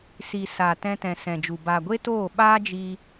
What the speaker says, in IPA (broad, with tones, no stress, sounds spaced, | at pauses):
s i˨ s aː˨ t ɛ̃˧ t ɛ̃˨ s ɛ̃˨ d͡ʒ u˨ b aː˨ ɡʷ e˦ t oː˦˨ ɓ aː˦ d͡ʒ i˧